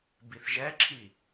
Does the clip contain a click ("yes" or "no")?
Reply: yes